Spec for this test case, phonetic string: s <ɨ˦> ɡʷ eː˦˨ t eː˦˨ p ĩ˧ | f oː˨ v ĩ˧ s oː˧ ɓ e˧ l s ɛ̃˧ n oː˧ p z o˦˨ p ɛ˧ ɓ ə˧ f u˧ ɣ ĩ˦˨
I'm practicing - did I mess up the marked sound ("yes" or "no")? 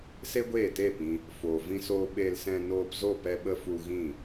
yes